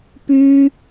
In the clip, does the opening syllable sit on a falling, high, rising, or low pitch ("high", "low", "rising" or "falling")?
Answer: high